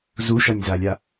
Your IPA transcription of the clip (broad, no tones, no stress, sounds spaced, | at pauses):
z u ʃ ʌ nʲ z a lʲ a